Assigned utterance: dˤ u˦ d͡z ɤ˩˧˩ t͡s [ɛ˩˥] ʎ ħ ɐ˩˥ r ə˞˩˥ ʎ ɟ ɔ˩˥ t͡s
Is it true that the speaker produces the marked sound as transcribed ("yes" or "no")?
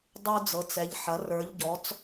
yes